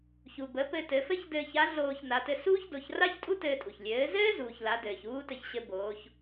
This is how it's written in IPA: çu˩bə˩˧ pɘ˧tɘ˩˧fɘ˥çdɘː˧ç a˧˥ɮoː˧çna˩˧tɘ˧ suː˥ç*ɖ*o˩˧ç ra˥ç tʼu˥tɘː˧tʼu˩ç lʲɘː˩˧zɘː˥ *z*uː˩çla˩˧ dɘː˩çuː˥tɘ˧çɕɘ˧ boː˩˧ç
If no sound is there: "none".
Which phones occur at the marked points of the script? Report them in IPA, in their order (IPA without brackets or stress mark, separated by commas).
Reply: d, z